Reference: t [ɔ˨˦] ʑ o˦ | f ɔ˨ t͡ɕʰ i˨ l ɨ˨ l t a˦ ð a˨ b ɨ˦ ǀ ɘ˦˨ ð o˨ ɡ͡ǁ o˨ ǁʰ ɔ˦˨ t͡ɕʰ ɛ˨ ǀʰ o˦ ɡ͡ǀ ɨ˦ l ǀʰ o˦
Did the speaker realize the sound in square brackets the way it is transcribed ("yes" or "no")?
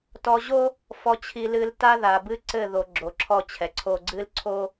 no